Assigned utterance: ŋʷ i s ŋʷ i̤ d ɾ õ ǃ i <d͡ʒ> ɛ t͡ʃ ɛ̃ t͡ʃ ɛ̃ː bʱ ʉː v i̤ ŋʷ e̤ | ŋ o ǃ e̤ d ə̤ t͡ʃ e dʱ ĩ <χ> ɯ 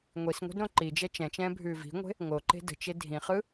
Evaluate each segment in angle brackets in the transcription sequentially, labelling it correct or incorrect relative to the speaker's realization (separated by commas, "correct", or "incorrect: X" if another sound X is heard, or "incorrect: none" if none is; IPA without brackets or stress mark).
correct, correct